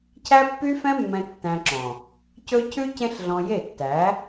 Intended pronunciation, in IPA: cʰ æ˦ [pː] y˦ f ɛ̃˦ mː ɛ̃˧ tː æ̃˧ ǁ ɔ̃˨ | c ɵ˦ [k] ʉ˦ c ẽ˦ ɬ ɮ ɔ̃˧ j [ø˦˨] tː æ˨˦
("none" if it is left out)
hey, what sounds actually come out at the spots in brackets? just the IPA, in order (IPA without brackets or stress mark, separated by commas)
pː, cʰ, e˦˨